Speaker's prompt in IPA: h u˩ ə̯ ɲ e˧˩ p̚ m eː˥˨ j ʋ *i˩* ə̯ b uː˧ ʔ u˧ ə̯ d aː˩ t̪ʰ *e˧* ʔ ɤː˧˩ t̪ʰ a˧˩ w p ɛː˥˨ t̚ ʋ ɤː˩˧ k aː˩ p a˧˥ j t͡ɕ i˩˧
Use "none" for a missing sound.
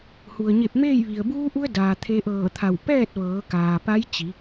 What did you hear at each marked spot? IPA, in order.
i˩, e˧

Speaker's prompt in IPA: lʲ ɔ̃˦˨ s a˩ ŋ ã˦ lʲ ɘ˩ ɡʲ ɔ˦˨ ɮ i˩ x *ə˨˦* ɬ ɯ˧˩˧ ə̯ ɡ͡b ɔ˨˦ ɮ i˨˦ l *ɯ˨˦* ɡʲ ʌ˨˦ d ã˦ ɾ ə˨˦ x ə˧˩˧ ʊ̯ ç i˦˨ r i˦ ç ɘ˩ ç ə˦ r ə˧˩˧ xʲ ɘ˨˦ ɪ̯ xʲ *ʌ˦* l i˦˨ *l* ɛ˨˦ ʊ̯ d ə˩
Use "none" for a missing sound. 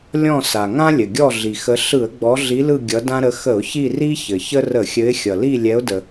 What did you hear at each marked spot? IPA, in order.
ə˨˦, ɯ˦˨, ʌ˩, lʲ

